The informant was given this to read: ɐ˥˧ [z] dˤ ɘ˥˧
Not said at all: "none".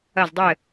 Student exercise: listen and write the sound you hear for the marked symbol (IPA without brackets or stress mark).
z